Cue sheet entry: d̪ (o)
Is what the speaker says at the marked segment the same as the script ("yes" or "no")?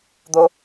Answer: yes